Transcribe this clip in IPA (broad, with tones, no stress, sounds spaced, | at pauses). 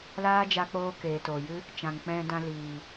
l aː˦ d͡ʒ a˧ k͡p oː˧ k eː˨ t oː˨ j ɨ˦ | t͡ʃ ã˨ ŋ k͡p ɛ̃˧ d ã˧ l iː˨